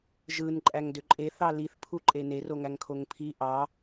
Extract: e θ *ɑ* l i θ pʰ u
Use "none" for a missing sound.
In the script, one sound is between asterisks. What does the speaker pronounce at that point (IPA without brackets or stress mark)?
ɑ